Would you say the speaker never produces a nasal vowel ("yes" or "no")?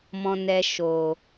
no